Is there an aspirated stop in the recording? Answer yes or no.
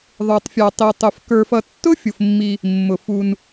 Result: no